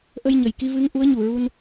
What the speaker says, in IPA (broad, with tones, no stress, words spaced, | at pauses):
ʔə˧jɲə˨˩j ki˧vɨ˧˥ŋ ʔu˧˥ə̯ɲu˨˩ɹu˧n